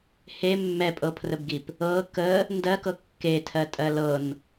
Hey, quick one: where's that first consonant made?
throat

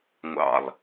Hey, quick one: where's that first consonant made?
velum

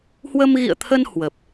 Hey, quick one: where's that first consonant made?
throat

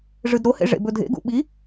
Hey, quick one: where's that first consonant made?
retroflex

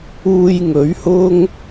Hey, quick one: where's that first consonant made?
palate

